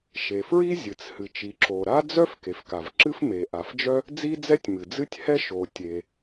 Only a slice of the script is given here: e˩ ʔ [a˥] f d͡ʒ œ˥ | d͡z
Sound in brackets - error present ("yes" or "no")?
yes